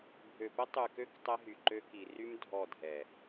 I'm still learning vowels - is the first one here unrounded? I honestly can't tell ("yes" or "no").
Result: no